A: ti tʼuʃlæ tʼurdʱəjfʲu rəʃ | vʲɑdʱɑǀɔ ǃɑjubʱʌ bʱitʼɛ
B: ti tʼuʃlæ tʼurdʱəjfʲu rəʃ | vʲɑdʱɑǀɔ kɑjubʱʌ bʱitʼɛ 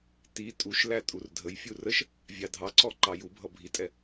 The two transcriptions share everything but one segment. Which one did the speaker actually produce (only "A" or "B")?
A